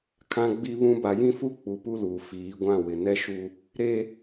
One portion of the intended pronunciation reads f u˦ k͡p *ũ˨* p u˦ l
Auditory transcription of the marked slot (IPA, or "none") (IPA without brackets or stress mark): u˨